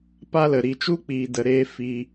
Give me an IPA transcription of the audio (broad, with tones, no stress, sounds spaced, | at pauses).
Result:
p a˦ l ə˨ ɾ i˨ t͡ʃ u˦ k͡p iː˨ d ə˨ ɾ eː˧ f i˧